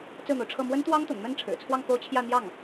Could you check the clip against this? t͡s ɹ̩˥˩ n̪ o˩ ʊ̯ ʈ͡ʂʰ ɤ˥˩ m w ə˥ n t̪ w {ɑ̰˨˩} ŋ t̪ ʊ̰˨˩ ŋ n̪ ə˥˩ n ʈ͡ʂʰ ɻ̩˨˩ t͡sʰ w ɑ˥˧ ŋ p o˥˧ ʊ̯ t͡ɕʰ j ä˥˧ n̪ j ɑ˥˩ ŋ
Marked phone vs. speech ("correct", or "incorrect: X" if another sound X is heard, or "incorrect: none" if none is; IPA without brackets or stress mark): incorrect: ɑ˥